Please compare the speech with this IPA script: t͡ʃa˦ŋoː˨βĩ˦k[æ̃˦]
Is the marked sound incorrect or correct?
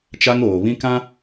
incorrect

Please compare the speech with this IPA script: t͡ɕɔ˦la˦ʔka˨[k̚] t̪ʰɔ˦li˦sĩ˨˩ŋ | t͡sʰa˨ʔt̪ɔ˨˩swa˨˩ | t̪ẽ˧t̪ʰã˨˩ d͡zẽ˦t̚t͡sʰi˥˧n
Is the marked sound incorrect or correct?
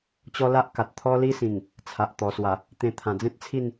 incorrect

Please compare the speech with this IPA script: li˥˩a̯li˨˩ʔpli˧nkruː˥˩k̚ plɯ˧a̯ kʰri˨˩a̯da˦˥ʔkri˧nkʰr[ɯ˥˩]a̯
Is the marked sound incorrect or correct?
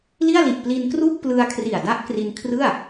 correct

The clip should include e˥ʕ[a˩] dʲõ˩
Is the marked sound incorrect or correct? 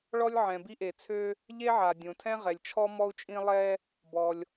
correct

